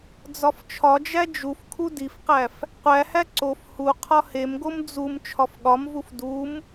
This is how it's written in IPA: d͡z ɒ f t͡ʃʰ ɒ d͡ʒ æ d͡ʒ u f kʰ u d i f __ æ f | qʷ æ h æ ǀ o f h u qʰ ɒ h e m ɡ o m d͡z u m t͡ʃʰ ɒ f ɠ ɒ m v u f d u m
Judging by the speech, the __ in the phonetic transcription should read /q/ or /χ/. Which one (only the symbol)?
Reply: q